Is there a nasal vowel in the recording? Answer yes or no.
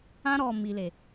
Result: yes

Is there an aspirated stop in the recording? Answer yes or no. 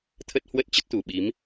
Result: yes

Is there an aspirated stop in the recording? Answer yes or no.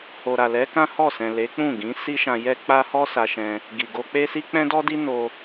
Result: no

